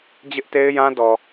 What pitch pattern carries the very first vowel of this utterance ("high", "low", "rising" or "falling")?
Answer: high